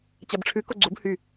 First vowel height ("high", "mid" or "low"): low